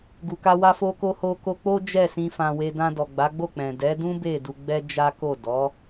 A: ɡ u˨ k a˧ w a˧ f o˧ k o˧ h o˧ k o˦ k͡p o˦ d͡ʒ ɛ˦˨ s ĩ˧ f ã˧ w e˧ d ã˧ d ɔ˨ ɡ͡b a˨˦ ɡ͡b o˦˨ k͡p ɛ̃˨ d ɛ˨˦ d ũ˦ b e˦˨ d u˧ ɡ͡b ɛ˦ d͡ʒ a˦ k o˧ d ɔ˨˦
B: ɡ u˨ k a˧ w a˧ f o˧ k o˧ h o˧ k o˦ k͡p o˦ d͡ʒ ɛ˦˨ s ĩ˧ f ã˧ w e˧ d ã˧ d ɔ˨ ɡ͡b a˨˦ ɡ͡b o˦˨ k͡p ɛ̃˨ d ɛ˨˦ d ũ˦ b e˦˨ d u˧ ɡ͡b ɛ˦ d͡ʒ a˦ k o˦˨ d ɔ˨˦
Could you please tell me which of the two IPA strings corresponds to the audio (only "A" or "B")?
B